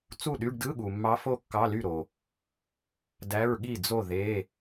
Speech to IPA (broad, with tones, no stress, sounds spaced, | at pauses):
t͡s u˥˩ ɗ y˧˥˧ ɖ d ɯ˧˥˧ ɠ u˨ mː ɑ˧˥ f o˥˩ kː ɑ˧˥˧ l y˥˩ ɾ o˨ | d æ˧˥˧ ɹ ɠ i˥˩ d͡z o˥˩ ð e˧˥˧